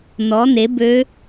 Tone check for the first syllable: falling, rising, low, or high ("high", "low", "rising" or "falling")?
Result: rising